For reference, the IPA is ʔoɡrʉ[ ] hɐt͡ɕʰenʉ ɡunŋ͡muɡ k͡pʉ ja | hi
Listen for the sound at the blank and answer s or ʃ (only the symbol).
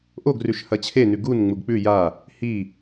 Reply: ʃ